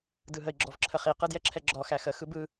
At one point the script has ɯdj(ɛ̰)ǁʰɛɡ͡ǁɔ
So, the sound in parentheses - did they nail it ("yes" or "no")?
no